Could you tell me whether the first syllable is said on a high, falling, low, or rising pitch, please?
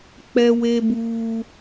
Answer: high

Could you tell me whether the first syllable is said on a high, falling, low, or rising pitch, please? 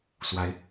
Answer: rising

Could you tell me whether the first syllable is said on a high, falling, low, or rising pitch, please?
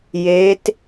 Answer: rising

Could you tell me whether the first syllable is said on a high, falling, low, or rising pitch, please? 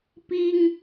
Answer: high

